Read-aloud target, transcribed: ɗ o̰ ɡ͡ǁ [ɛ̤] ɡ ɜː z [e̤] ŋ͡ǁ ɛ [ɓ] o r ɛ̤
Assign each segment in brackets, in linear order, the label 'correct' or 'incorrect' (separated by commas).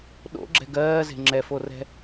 correct, correct, incorrect